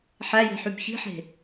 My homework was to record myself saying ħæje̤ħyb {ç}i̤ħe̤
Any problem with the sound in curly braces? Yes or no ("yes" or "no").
no